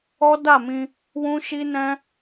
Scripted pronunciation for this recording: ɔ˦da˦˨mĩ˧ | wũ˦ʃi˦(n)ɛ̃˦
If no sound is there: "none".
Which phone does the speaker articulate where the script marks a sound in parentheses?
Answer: n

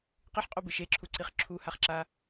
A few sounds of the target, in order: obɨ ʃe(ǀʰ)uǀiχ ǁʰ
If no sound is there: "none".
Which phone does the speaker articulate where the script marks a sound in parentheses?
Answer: ǁʰ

